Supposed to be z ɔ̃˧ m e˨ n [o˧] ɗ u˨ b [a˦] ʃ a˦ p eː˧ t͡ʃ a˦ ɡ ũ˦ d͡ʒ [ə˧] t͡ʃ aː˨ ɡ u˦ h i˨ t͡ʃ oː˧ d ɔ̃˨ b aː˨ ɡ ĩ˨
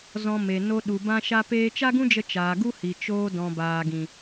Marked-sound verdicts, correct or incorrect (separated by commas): correct, incorrect, correct